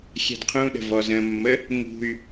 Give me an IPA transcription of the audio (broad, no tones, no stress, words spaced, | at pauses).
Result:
xʲɛ̤dqʰũɗə̤ vɔzə̃mːə | ŋṳy̯